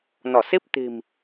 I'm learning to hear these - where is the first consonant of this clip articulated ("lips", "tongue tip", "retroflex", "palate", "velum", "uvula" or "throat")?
tongue tip